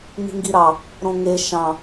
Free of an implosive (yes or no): yes